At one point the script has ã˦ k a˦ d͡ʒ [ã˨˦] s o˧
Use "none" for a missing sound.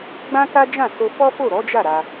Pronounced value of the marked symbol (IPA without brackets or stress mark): ã˦˨